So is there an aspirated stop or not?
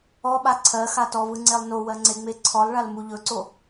yes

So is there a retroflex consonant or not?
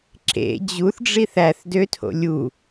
yes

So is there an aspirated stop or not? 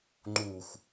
no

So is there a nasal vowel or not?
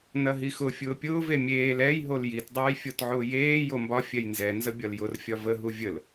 no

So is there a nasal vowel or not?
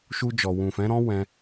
yes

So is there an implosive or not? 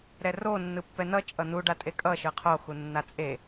no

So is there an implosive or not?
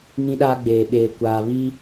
yes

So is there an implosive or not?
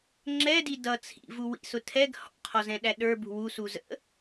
yes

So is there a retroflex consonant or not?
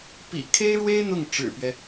yes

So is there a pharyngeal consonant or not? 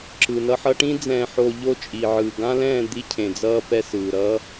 yes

